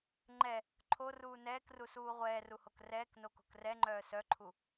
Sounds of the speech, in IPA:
ŋ͡ǃ ɛ | ǃʰ o r uː n ɛː k r u s uː ʁʷ ɛː r u h o k r ɛː k n o k o̤ k r ɛ ŋ͡ǃ œː s œ ǃʰ u

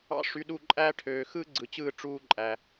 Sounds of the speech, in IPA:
ɑ̰˦ ʂ y˧ ɗ u˦˨ ǃʼ æ˦ ʈʰ øː˨ x ɯ˦ ɡ͡ǀ ɯ˨ t͡ɕ ɯː˦˨ ʈ͡ʂ uː˦ ǃʼ æ˨

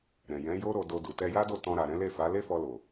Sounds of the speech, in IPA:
ɾ ɛ̃˨ j ɛ̃˨˦ j o˦ ɾ o˧ d o˧ d u˨ t ɛ˧ j a˦ d o˦˨ t ɔ̃˧ ɾ a˨ ɾ ɛ̃˨˦ l e˦˨ f a˨˦ l e˦ f ɔ˧ l o˨

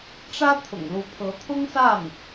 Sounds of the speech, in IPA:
ʈ͡ʂ ä˥ t̪ʰ ʊ̰˨˩ ŋ l u˧˥ pʰ ɤ˧˥ t̪ʰ ʊ˥ ŋ s a˥˩ n

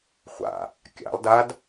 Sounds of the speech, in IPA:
χʷ a̰ | kʲ a̰ lˠ d a d

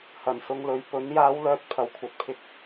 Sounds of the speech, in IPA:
h ɐ˨˩ n s ʊ˨˧ ŋ l ɵ˨ ɥ p ɵ˨˥ n j aː˨˧ w l œː˨ t̚ pʰ ɐ˨˧ w kʷʰ ɐ˧ t̚ pʰ ɪ˧ k̚

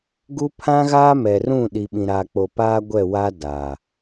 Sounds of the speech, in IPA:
ɡ u˦ pʰ ã˦ ɣ aː˦ m ɛ˨ r ũ˦˨ ɗ i˨ ɓ ĩ˨ ɾ a˨ k͡p o˨ p aː˦ ɡʷ ɛ˦˨ w a˦ d aː˨

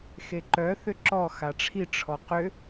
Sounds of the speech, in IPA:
x e ǃ œ θ ʏ ǁ ɔ x a ʈ͡ʂʰ i ʈ͡ʂʰ ɔ q ʏ

